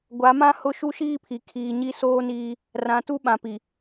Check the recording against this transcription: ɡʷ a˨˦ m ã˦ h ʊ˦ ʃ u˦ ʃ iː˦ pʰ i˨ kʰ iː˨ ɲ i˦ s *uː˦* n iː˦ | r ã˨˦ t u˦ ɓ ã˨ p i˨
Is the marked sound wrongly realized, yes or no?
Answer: yes